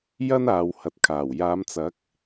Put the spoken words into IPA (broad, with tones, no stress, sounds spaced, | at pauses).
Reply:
j ɐ˥ n aː˨ w h ɐ˨ t̚ kʰ aː˨˩ w j aː˨˧ m t͡s ɐ˨˥ k̚